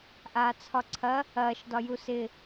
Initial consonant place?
glottal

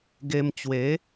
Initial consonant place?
velar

